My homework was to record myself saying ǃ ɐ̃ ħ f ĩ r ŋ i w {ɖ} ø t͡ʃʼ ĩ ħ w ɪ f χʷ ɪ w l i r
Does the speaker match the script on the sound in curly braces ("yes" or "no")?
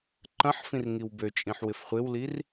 no